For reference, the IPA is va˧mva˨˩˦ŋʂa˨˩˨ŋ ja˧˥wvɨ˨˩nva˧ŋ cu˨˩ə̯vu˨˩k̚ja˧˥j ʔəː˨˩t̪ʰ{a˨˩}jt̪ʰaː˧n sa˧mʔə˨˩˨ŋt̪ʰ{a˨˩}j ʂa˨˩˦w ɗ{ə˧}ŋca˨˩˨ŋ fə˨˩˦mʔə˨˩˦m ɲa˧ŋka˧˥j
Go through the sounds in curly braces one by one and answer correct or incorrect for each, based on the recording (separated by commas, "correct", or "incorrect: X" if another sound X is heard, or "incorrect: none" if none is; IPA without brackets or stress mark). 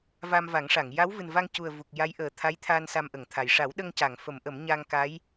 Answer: incorrect: a˧˥, correct, correct